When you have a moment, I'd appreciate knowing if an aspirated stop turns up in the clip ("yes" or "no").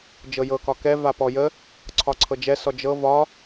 yes